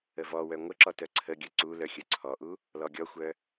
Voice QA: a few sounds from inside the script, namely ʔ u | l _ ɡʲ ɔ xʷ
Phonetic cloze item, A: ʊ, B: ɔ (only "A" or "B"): B